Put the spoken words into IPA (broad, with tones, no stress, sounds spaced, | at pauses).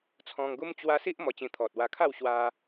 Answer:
t͡sʰ ɔ̃˧ ŋ ɡ u˦ m t͡ɕ w a˦ s i˦ ʔ m ɔ˧ t͡ɕ ĩ˧ t̪ʰ ɔ˨ t̚ w a˧ kʰ a˥˧ w ɕ w a˧